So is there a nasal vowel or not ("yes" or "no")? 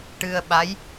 no